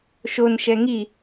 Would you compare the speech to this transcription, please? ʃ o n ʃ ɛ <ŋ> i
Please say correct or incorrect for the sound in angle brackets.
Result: correct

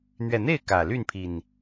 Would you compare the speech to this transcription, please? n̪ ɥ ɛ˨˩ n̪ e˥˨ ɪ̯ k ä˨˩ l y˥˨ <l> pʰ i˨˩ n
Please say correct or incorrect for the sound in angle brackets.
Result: incorrect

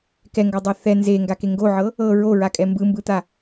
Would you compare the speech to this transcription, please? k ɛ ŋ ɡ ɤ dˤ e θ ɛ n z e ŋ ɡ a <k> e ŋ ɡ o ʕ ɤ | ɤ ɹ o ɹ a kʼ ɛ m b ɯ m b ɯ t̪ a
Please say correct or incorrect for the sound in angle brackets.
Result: correct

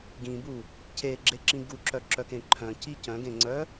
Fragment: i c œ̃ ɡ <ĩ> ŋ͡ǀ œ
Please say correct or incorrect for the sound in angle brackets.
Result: incorrect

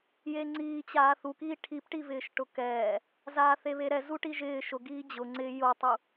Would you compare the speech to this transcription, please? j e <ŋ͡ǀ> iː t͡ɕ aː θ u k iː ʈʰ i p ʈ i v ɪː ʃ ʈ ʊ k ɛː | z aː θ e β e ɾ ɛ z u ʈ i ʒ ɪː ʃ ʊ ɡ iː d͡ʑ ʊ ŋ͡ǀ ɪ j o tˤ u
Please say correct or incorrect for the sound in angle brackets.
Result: correct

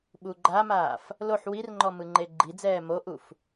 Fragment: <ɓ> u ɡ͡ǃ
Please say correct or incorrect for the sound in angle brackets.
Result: correct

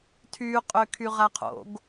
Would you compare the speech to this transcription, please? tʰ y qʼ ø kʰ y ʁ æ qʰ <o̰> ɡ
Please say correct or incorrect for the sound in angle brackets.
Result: correct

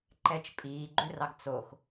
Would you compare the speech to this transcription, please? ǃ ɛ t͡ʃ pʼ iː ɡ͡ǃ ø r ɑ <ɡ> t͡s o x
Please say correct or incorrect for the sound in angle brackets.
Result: correct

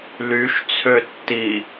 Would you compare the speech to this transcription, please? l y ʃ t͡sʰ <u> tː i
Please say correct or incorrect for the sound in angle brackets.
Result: incorrect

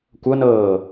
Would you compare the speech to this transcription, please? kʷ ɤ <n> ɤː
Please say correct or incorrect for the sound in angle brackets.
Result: correct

